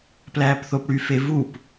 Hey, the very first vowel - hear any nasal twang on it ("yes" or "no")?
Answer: no